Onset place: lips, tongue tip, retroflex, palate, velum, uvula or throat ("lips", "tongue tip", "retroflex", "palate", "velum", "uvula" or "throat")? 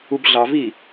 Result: lips